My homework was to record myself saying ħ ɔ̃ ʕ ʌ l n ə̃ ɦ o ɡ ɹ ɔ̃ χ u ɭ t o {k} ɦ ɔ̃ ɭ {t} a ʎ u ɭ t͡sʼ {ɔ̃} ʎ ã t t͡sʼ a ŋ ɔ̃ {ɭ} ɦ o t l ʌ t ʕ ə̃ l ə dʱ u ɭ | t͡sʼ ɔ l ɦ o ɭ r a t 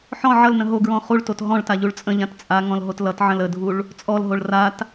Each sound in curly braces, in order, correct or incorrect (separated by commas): incorrect, correct, incorrect, incorrect